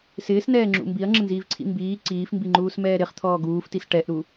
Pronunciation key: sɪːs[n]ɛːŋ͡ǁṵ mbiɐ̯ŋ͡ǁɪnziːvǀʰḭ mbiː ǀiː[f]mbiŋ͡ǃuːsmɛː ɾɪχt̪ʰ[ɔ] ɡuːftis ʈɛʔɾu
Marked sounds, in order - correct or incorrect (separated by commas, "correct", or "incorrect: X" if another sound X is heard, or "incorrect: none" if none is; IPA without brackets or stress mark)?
correct, correct, incorrect: ɔː